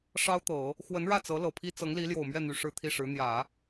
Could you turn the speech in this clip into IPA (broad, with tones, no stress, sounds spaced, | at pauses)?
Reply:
ʂ ɑ˥ ʊ̯ t̪ ɤ˨˩˦ | x w ə˧˥ n ɻ ä˥˩ t͡s ɤ˧˥ l ɤ˨˩ pʰ i˥ t͡s ɤ˧˥ ŋ l i˧˥ l j o˨˩ ʊ̯ m ɥ ɛ˥˩ n̪ y˨˩ ʂ ɻ̩˥˧ t̪ʰ i˥˩ ʂ ɻ̩˧˥ n̪ j ä˨˩˦